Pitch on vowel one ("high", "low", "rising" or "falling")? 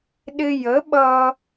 high